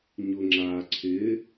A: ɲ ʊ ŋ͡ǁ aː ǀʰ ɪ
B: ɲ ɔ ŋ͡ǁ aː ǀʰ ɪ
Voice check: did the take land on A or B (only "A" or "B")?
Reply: A